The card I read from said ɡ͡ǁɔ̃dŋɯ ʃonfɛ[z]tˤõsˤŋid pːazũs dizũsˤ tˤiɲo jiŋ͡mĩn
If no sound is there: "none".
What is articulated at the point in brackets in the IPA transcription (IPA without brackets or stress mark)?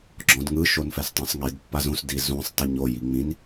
s